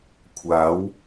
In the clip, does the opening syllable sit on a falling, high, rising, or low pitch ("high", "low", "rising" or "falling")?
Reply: rising